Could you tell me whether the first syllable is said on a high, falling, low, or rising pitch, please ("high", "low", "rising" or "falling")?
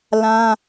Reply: high